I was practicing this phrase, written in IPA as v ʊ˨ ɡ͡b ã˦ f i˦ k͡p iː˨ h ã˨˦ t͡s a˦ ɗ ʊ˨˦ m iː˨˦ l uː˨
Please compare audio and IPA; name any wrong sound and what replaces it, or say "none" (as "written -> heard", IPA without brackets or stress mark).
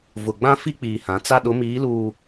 none